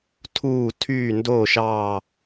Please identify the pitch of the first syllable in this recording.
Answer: falling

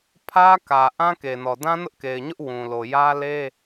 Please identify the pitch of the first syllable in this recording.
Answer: high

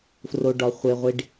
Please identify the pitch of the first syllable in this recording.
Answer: high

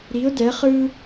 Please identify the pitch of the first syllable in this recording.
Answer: rising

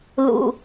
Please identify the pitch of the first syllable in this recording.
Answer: low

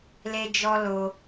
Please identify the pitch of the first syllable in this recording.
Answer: high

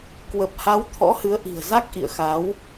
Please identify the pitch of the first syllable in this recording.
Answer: low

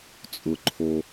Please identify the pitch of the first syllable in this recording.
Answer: low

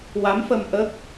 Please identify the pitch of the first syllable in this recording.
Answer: rising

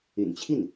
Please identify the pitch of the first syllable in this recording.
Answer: low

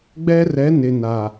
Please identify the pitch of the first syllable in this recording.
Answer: high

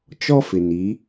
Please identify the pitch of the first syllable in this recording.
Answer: high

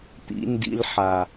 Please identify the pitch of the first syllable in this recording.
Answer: low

